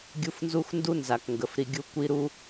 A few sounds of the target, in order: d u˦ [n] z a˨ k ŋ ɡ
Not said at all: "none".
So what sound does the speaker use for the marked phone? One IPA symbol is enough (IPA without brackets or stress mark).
n